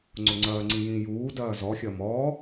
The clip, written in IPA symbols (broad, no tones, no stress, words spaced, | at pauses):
ŋ͡ǀʊŋ͡ǀɐːŋ͡ǀĩ jĩːjuːdɐː zɔxʲɐ mɔː